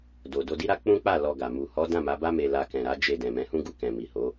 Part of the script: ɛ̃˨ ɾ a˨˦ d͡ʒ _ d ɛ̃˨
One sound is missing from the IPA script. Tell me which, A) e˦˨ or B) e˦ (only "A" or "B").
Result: A